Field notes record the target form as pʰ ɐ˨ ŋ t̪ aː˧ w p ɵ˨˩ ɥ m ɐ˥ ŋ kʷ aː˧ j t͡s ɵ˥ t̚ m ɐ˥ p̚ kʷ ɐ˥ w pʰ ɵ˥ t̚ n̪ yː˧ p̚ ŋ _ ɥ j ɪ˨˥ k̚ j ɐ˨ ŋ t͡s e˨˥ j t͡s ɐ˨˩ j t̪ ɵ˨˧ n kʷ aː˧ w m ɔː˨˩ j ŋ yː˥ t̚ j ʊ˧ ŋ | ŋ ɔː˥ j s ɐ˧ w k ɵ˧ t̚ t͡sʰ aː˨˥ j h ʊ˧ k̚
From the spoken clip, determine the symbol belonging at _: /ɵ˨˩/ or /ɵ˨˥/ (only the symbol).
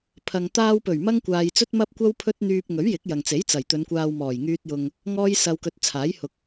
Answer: ɵ˨˥